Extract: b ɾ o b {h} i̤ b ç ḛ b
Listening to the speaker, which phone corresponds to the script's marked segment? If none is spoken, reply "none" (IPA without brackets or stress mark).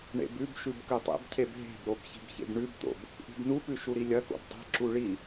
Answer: ç